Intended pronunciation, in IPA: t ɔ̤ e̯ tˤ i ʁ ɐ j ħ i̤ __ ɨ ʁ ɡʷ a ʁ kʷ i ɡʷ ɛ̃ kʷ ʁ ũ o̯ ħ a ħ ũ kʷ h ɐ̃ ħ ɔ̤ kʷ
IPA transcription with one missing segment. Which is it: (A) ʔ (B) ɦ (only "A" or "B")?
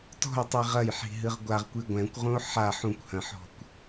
B